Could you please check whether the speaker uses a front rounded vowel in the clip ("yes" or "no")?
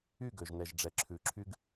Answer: yes